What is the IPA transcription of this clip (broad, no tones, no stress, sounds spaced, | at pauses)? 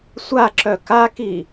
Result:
sʷ a ǁ œ k a k i